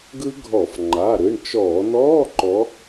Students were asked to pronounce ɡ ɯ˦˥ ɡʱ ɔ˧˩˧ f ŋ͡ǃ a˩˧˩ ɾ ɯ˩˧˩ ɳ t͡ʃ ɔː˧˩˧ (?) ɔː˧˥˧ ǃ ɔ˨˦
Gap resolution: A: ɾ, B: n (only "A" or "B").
B